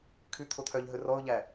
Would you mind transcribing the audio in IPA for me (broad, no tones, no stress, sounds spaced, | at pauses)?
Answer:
kʰ ʉ t̪ʰ o t̪ʰ œ ʎ ɦ ɵ r ɔ ʊ̯ ʎ æ